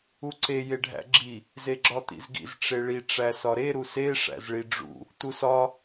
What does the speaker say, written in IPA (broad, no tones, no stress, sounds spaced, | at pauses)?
u ǀ e j e ɖʱ æ̰ ɡ͡ǁ i | z e ɡ͡ǁ ɒ t̪ ḭ z ɡ ḭ z ʈ͡ʂ e ɭ i ʈ͡ʂ æ s ɒ ɾ e ɾ u s e ʂ æ̰ z ɭ i ɖ͡ʐ ṵ | t u s ɒ